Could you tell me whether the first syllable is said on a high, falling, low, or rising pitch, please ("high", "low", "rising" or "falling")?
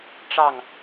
falling